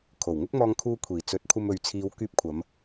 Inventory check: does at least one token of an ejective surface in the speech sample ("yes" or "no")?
no